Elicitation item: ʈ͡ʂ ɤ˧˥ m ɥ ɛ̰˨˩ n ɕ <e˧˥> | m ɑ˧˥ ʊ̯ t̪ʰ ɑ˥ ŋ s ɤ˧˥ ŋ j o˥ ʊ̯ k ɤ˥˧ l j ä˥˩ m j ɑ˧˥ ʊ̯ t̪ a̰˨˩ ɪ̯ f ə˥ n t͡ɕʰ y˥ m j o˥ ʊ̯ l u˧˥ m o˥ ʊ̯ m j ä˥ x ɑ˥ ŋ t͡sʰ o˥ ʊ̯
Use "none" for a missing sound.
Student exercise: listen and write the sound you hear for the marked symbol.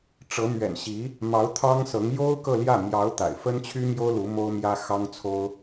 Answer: i˧˥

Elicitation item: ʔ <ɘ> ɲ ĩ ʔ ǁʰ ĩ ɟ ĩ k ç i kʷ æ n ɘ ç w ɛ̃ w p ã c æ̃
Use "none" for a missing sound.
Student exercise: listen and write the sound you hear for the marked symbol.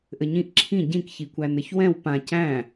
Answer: ɘ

